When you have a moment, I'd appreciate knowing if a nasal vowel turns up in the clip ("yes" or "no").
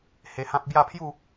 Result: yes